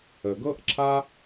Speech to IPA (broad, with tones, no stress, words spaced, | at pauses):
ə˩ɡɤ˥ʔǁʰa˥